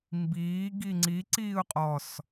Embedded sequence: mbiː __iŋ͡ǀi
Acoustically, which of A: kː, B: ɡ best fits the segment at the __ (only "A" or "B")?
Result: B